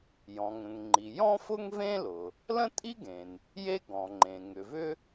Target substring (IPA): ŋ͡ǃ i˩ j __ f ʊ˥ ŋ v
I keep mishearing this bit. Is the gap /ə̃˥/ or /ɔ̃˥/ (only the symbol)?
ɔ̃˥